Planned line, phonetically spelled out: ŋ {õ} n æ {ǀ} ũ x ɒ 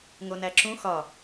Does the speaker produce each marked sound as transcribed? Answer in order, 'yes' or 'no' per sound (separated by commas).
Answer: no, no